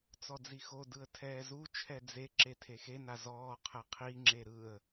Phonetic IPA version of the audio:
t͡s ɔ d͡z i x o d ɯ ə̯ tʰ ɛː z u t͡ʃʰ ɛ d͡z e ǁ e tʰ e x e n a z ɔː qʰ ɛ qʰ i ŋ͡ǁ e ɾ ɯ ə̯

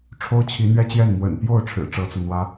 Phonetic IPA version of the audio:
ʈ͡ʂʰ o˥ ʊ̯ t͡ɕʰ i˧˥ n̪ ɥ ɛ˥ t͡ɕ j ɛ˥˩ n m w ə̰˨˩ n p j o˥˩ ʊ̯ ʈ͡ʂʰ ɻ̩˨˩ ʈ͡ʂ ɤ˧˥ t͡s ɤ˧ n̪ w ä˥

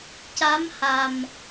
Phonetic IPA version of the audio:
c a˧˥ m h a˨˩ m

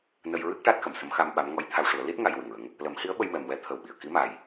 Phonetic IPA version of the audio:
n ə˧ j ɹ ɨ˦˥ k̚ ʈ a˦˥ t̚ x ə˨˩˨ m s ə˧˥ m x a˧ m ɓ a˧˥ m ŋ ɔ˧˥ j t̪ʰ a˧ w ʂ u˨˩˦ ə̯ l i˦˥ t̚ ŋ a˧ j w ɨ˨˩ ŋ ɹ ə˧˥ ŋ | l ə˨˩˦ m h i˧˥ ə̯ ɓ ə˧ j m ɛ˨˩ m w ɛ˧˥ t̪ʰ ə˨˩ w ɓ i˨˩˨ ə̯ k i˧˥ m a˨˩ j

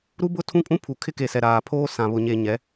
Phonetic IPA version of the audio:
ɾ u˦ b ʊ˦ tʰ ũ˦ kʼ ũ˦ pʰ u˨ kʰ ɪ˦ k e˨ s ɛ˨ ɾ aː˨ pʰ oː˦ s ã˨ β ʊ˨ ɲ e˨ ɲ ɛ˨˦

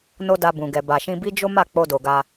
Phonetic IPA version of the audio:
n o˦ d a˧ b ũ˨ ɡ ɛ˨ b a˨ ʃ ĩ˧ b i˦ d͡ʒ o˦ m a˦˨ k͡p o˧ d o˨ ɡ a˧

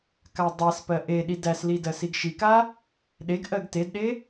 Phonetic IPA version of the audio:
k a dˤ æ s p ɜ ʔ e ɗ i d æ s l i d ɜ s i ɡ ʃ i k a | ɗ e ɡ ʔ ɜ ɡ t e d ɗ e

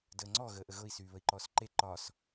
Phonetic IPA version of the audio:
d əː ŋ͡ǀ ɔ ɣ əː ʔ ə ɣ ɤ i̯ s yː β ə i̯ ǃ ɔː s ǃ e ǃ ɒ s

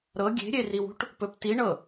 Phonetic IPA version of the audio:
ɾ ɤ ɡʲ e̤ ɾʲ e r i w ṳ ʈ | p ɵ p t i ɳ ɤ

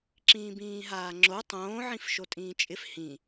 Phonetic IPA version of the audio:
ǁ ĩː b ĩː ɦ aː ŋ͡ǁ o tˤ õː ʕ ĩ f ʃ o tʼ ĩː t͡ʃʼ ɪ f h ĩ

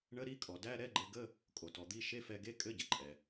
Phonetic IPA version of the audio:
ɳ ə˧˥˧ ɾ i˧˥˧ kʼ ɔ˩ d æ˧˥˧ ɾ ɛ˧˥˧ ɡ͡ǃ ɘ˧ ɡ ə˧˥˧ | kʼ o˩ t ɔ˩ d̪ i˧˥˧ ʃ e˧˥˧ f ɛ˧ ɡ e˧˥˧ kʼ ɘ˧˥˧ ɟ ɘ˩ ǃʼ ɛ˩

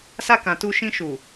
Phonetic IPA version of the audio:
s a˧ k ã˨ t u˧ ʃ ĩ˧ ʃ u˨

